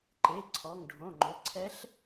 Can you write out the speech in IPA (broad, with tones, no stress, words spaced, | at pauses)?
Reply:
ǃe˩˧˩ ǀʰɔ˩˧˩ŋɖʱõ˩˧˩ŋ͡ǃʊ˩˧˩ǀʰɛ˧˥ɬ